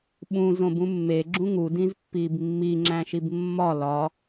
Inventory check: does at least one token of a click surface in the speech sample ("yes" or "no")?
yes